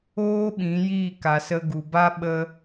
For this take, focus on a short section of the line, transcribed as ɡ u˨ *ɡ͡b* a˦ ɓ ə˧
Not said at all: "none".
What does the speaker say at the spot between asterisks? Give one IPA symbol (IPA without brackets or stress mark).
b